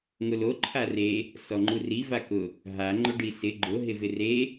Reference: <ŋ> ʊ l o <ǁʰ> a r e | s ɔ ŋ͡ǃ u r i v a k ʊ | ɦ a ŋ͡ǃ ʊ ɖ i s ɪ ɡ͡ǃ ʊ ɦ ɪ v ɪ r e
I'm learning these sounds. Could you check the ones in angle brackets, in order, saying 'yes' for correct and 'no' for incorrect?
yes, no

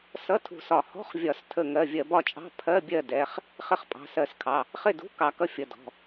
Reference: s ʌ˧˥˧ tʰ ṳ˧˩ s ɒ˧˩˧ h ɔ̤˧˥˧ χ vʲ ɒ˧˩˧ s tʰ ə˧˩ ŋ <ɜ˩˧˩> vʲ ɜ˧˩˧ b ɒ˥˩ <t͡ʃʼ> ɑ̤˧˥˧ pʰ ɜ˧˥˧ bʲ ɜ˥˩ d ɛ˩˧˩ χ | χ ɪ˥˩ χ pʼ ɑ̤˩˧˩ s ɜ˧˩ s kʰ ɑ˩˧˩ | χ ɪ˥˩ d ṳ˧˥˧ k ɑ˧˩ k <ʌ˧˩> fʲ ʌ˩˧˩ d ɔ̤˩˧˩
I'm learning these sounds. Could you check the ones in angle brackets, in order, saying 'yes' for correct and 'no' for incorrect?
yes, yes, no

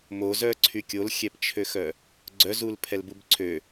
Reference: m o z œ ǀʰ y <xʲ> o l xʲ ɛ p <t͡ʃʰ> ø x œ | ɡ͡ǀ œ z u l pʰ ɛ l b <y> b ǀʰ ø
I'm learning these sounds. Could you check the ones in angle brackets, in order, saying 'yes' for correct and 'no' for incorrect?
no, yes, no

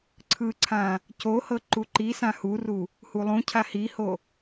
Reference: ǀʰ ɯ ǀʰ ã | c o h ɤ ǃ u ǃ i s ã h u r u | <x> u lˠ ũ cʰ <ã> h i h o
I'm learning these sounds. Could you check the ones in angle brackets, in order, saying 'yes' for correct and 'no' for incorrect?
no, no

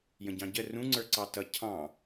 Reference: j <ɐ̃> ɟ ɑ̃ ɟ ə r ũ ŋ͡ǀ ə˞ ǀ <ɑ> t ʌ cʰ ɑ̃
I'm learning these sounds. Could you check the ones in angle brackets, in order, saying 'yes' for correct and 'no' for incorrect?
no, yes

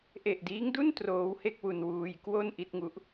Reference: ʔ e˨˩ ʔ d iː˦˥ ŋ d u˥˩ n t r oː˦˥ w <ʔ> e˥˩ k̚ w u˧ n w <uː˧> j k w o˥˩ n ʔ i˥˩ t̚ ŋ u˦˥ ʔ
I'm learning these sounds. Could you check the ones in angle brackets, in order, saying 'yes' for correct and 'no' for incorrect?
no, yes

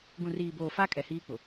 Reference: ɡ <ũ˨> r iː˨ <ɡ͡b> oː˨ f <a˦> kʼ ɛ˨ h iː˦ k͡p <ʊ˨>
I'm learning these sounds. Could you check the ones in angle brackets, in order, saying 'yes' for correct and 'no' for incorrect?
yes, no, yes, yes

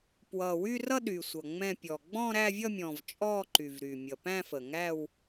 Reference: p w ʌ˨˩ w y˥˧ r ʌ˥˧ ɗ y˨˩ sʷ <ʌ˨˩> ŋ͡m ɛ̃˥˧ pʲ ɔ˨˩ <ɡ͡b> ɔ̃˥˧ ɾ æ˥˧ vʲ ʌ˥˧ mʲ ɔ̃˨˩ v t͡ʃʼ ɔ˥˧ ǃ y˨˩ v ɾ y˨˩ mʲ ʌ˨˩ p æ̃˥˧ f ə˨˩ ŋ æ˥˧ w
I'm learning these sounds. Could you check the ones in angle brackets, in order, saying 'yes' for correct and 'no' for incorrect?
yes, yes

